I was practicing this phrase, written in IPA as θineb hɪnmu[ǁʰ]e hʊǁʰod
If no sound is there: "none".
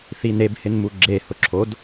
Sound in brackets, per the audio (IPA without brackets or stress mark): ɡ͡ǁ